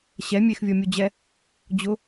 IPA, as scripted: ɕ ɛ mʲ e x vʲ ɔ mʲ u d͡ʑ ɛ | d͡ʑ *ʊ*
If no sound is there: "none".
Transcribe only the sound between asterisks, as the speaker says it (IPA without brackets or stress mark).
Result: ʊ